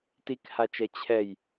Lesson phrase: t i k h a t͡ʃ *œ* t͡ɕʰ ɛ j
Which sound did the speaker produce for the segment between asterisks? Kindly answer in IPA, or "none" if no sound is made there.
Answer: ɛ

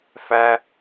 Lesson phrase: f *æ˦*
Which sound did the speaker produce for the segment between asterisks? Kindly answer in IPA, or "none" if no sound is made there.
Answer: æ˦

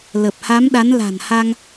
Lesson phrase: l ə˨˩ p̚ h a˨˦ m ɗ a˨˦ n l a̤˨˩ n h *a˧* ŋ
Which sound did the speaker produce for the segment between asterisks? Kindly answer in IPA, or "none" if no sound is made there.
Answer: a˧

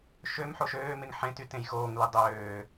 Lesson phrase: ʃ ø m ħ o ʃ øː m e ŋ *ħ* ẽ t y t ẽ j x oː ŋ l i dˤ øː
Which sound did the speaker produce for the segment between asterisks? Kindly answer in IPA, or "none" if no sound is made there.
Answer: ħ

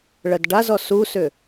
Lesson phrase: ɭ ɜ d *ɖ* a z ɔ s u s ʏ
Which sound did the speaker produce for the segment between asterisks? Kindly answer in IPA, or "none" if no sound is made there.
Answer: ɖ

